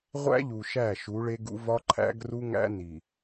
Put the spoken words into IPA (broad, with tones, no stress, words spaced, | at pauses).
ʁʷæ̰˦ ʎu˨ʃæ˦˨ ʃu˨˦ɭe˦ɡṵ˦vɒ˦ ǃʰæ̰˦ɡru˦ŋæ̰˦ ni˨